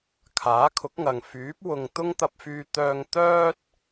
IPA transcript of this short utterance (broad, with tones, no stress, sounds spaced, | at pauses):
kʰ aː˨˥ kʰ ʊ˨˥ k̚ ŋ ɐ˨ ŋ f yː˨˥ p̚ w ʊ˨ ŋ t̪ ʊ˥ ŋ t̪ ɐ˧ p̚ f yː˧ t̪ œː˧ ŋ t̪ œː˥ t̚